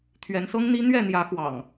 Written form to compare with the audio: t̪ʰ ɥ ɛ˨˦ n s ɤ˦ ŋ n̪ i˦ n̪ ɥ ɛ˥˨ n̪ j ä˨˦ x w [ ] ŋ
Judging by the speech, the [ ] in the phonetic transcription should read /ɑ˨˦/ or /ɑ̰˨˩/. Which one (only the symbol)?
ɑ̰˨˩